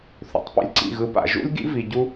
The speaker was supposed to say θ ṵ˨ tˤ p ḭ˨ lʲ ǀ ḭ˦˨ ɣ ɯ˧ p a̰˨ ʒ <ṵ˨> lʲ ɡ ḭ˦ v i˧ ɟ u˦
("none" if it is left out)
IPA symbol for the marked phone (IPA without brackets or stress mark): ṵ˦